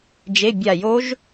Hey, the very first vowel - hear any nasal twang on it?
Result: no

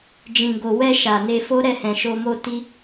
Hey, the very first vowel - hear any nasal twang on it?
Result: yes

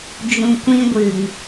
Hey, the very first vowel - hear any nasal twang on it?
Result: yes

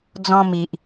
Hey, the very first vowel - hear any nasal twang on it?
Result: yes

